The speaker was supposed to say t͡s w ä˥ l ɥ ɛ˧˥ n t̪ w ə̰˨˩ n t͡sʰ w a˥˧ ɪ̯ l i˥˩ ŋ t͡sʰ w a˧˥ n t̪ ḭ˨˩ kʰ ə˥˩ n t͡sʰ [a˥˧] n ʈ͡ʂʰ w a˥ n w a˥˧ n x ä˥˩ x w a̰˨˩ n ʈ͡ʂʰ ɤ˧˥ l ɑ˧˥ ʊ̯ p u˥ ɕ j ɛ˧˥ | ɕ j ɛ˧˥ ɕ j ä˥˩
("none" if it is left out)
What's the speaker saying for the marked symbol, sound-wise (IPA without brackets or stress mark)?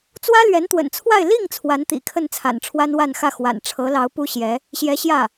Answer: a̰˨˩